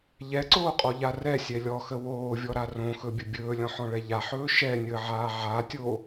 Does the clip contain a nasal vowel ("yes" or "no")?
yes